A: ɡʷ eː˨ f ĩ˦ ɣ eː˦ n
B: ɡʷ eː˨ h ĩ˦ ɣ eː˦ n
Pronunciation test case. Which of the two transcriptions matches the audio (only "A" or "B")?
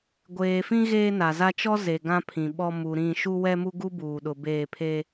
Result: A